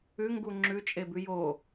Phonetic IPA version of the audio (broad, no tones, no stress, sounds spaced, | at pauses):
ʉ ŋ ɡ u ŋ͡ǁ ʉ t͡ʃʼ e b ʉ j o